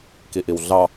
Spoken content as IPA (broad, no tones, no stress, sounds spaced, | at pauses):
k i ʔ i w ɮ ɑ